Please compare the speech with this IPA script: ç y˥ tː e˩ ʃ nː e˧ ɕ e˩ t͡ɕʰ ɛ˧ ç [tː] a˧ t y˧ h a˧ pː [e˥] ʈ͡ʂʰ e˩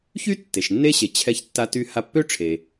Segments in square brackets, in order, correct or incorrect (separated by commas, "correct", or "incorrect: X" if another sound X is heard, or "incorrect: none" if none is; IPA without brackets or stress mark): correct, incorrect: ø˥